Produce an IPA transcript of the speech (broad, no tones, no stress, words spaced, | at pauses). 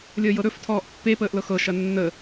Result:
lʲəːjɤɾɵf tʰɔːʔpːe pəːʔlɤxɤ ʃɐnːə